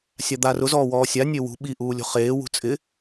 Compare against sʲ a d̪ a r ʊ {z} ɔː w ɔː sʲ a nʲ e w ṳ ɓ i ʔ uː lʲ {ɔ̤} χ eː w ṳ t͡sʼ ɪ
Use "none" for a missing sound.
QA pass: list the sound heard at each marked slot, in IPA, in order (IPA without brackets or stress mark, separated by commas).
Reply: z, o̤